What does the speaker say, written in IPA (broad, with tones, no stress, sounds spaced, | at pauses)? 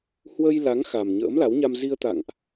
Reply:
h w ə˧ j l a˨˦ ŋ x a˨˩ m ɲ ə̰ː˧˥ m l a˨˦ w ɲ a˧ m z i˧ ə̯ t̪ a̰˧˨ ŋ ʔ